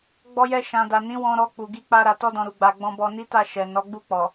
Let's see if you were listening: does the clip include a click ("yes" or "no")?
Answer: no